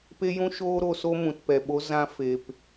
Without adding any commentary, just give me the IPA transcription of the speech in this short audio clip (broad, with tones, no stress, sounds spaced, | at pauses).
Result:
p e˦ j ũ˦ ʃ oː˦ ɾ o˧ s o˦ m ũ˨ t p ɛ˨ ɓ o˧ z ã˧ f e˨ p